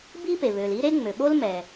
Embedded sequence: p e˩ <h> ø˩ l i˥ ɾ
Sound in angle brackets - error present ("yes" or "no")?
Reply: yes